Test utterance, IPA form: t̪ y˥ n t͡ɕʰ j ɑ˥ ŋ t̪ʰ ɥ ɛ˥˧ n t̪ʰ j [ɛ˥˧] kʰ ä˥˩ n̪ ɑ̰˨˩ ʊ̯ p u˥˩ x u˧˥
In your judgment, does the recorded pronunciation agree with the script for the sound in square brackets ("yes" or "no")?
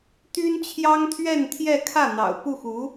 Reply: yes